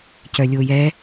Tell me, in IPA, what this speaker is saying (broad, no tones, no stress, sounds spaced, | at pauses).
c œ lʲ o j ɛ